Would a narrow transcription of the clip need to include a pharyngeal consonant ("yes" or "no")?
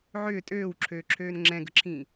yes